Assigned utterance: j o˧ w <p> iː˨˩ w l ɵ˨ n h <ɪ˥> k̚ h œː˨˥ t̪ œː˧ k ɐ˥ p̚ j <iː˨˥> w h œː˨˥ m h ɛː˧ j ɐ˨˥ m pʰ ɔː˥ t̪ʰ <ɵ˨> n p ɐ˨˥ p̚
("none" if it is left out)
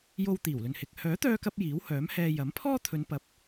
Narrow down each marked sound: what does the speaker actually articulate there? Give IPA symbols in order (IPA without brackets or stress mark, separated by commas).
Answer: t̪, ɪ˨˥, iː˨˥, ɵ˨˧